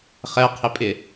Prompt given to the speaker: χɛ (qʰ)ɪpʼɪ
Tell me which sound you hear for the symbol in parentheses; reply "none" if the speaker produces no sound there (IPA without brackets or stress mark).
qʰ